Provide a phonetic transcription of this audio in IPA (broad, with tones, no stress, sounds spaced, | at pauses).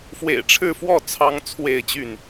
f w ḛ˨˩ ɪ̯ ʈ͡ʂʰ ɻ̩˥˨ f w ɔ˥˨ t͡sʰ ɑ˦ ŋ t͡sʰ w e˥˨ ɪ̯ t͡ɕ y˥˨ n